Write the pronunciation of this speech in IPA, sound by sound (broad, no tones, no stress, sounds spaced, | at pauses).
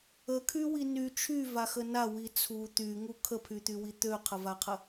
ə kʰ y w i n y t͡ʃʰ y v a x ə n a w i t͡sʰ u t̪ y ŋ u kʰ ə pʰ y t̪ y w i t̪ ø qʰ ə v a qʰ ə